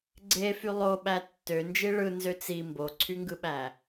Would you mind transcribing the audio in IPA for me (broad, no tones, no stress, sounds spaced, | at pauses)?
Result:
ɡ͡ǀ e f y lˠ o ɓ æ tː ø n d͡ʒ i ɭ ɯ n z ø t͡s i m b o ǀʰ y ŋ ɡ ɯ ɓ æ